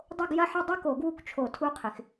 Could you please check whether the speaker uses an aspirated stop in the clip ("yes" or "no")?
yes